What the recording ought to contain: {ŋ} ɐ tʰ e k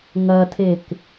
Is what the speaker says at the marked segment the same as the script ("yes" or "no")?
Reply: yes